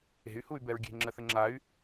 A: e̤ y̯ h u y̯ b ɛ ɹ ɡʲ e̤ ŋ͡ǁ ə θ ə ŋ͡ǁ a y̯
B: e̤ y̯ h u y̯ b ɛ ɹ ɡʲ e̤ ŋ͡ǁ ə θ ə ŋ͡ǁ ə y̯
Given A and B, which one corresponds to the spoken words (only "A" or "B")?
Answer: A